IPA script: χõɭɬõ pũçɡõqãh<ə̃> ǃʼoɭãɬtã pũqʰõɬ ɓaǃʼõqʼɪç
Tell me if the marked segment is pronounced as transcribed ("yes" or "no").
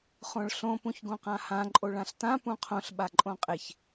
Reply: no